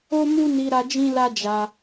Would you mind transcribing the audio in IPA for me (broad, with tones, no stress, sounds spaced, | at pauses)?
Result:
o˦ m u˦ n i˧ ɾ a˧ d͡ʒ ĩ˦ l a˦ d͡ʒ a˧